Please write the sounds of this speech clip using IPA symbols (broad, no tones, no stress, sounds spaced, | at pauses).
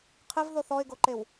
qʰ ɪ v ð o θ ɔ ɪ̯ ɡ o ǃ e w